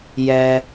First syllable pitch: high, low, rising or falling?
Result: low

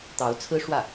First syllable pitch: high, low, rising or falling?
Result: rising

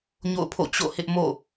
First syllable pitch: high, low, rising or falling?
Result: falling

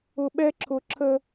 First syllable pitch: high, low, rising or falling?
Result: low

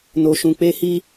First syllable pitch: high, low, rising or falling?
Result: low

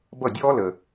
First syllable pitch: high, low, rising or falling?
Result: falling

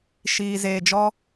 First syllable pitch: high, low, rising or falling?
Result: low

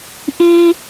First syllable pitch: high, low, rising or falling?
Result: high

